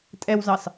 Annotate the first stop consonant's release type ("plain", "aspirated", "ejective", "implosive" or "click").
ejective